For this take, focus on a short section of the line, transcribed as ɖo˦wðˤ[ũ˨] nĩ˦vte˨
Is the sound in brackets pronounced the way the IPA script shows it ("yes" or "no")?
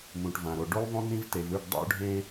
no